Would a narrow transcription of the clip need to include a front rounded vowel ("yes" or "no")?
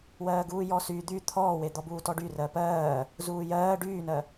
yes